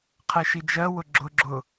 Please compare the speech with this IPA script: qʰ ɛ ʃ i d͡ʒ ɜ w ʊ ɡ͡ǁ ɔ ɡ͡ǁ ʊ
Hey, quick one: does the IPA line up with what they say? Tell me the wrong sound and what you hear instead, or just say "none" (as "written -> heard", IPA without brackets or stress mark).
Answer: ɔ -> ʊ